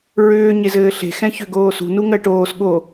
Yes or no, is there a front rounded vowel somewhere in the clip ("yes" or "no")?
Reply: yes